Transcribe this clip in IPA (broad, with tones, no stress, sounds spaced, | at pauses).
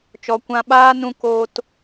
t͡ʃ ɔ˨ kʷ ã˧ ɓ aː˦ n ũ˦ k oː˦ t